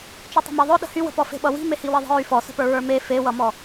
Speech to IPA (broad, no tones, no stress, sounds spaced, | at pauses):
t͡ʃ y tˤ ə̤ m e ðˤ œ ɗ ə̤ h y w ə̤ p ɔ f e̤ ɓ ʌ w i̤ m e h i w i ðˤ ə̤ ɹ y f ɔ s ə̤ p ə˞ ɹ ə˞ m e f e w ʌ m ɔ